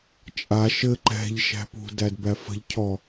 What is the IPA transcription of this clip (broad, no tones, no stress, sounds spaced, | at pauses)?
t͡ʃʼ a ʃ ɘ ǃ ɛ̤ ʎ ʃ æ̤ p ṳ d æ d b æ f ə̤ ʎ cʰ ɔ